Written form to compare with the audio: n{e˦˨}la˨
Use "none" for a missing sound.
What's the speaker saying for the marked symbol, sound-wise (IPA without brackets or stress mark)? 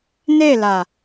e˦˨